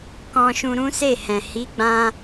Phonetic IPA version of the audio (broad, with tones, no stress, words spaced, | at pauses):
kɔ̃˧ʃũ˧ ɾũ˦se˦˨hɛ̃˨ hi˨˦ɡ͡bã˧